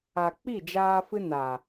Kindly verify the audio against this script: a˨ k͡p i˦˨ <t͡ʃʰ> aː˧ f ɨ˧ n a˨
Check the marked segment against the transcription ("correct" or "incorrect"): incorrect